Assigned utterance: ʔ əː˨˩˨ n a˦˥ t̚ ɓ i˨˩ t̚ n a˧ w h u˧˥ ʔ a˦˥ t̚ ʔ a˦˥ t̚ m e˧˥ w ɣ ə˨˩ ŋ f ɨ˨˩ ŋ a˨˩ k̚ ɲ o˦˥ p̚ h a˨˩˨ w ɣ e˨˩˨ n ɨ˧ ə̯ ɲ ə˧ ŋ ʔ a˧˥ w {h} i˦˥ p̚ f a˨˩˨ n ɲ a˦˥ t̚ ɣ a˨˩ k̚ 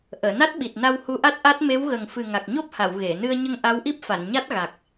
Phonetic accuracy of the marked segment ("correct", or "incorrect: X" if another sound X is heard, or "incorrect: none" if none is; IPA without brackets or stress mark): incorrect: ʔ